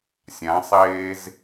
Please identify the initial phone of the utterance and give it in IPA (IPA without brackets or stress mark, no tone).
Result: sʲ